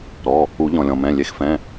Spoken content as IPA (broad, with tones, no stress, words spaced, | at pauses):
ɾɔ˩˧˩ | u˨˩˦ʎɔ̃˩lʲɔ̃˩mɛ̃˩˧˩ lʲe˨˦xfɛ̃˩˧˩